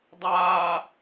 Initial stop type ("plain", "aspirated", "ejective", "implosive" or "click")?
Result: plain